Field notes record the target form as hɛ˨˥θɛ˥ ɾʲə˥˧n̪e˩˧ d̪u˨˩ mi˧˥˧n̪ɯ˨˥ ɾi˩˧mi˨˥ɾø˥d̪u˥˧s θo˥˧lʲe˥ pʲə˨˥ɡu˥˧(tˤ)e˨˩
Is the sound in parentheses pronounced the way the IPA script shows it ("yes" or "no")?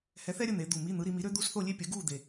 no